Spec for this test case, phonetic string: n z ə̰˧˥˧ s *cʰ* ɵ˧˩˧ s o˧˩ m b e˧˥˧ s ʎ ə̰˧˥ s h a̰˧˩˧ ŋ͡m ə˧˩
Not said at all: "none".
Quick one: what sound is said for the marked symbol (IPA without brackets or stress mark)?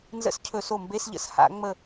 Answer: cʰ